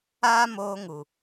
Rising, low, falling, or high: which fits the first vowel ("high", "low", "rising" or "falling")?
high